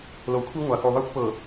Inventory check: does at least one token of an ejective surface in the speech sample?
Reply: no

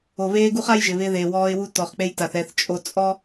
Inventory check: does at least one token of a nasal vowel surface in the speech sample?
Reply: no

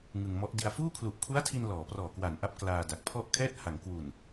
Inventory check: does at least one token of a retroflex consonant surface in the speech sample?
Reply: no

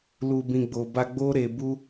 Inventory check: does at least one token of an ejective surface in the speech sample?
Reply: no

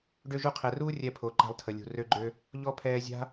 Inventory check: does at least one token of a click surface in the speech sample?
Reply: yes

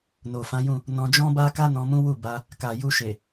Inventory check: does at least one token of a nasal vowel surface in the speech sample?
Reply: yes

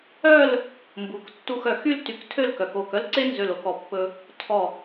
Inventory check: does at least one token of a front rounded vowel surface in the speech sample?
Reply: yes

